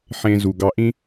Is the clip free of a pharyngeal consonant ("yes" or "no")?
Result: no